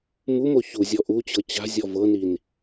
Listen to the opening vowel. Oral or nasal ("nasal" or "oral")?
oral